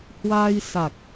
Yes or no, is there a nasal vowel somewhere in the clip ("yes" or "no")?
no